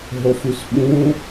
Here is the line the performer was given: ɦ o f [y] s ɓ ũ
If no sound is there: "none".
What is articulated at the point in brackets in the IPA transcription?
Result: y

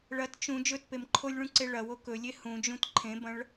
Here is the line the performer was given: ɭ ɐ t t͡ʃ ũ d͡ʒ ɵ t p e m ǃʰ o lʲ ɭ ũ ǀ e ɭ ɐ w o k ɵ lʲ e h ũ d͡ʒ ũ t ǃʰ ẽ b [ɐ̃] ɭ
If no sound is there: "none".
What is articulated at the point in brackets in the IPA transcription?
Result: ɐ̃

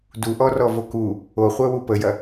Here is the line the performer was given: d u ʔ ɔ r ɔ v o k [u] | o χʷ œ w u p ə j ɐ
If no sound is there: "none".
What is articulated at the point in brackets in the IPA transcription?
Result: u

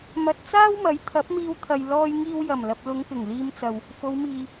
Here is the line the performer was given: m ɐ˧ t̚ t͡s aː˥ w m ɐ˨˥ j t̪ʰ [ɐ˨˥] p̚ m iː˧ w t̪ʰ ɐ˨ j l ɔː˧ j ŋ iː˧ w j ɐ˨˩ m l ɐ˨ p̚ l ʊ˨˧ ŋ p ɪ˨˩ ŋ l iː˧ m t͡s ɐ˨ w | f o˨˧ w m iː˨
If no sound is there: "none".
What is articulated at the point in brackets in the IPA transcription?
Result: ɐ˨˥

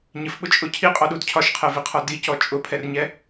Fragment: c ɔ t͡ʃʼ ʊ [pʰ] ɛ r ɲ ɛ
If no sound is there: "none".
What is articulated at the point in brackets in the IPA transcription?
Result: pʰ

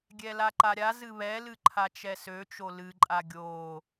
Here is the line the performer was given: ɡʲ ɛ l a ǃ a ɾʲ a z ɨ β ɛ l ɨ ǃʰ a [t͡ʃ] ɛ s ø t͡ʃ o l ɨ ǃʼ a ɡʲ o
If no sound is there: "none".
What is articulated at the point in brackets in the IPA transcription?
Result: t͡ʃ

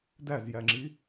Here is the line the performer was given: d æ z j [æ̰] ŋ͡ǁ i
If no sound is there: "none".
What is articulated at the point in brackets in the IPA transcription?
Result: æ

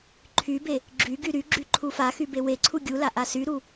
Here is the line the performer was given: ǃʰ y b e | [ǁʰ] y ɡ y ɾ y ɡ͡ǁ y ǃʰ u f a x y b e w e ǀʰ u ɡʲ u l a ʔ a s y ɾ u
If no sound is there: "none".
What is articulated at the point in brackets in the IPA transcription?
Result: ɡ͡ǁ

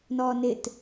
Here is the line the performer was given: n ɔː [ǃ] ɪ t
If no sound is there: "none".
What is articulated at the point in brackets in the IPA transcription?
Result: n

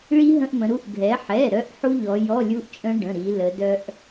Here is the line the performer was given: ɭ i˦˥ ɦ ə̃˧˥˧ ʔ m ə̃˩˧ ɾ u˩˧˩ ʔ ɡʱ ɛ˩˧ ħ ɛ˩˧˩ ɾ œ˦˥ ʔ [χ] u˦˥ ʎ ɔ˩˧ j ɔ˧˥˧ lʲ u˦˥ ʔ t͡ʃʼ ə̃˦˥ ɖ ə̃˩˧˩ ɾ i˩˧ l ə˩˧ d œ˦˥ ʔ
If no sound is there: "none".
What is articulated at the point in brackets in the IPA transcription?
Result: ħ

